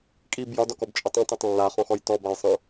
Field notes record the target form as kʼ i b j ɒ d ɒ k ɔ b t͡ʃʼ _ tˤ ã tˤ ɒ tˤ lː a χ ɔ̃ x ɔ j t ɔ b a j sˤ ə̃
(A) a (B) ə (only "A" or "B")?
B